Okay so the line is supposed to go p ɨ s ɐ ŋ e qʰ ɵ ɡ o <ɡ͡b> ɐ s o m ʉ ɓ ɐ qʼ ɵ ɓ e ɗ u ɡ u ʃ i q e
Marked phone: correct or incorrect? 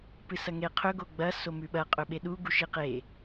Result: correct